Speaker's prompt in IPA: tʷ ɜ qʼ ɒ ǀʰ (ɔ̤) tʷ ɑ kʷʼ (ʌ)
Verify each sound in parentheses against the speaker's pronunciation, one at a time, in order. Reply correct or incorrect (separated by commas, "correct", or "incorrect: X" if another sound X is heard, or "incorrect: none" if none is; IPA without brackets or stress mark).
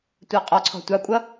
correct, correct